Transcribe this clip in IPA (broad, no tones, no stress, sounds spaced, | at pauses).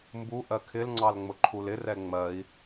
m b u ʔ ɜ kʰ ɪ l ŋ͡ǀ ɑ l ŋ͡m ʊ ǃʰ u l ɪ r ɛ ŋ͡m ɜ i̯